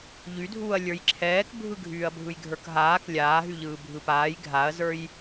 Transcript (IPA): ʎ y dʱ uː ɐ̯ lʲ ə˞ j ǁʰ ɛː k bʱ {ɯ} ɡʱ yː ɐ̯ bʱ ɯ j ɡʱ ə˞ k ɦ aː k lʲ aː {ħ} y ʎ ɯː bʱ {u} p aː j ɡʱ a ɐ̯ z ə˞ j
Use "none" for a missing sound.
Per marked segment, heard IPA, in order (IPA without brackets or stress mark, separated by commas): ɯ, ɦ, ɯ